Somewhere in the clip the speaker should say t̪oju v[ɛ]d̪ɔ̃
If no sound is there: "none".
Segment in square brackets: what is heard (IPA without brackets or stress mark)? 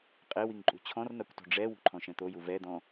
ɛ